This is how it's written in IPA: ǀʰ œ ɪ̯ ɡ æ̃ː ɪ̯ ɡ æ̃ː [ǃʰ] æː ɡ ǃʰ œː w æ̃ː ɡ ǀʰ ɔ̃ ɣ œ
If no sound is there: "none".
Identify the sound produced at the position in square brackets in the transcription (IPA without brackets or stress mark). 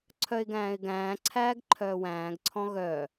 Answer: ǀʰ